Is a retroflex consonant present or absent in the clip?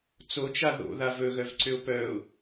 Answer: absent